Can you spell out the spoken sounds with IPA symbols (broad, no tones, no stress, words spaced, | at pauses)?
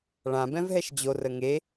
ɭãbɛ̃vɦɛʃ d͡ʑorə ŋe